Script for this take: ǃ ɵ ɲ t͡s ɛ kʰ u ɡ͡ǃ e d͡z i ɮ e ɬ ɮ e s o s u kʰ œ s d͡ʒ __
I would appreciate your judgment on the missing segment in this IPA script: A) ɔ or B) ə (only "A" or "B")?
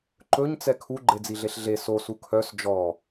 A